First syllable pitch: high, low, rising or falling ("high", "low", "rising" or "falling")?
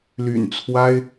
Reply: low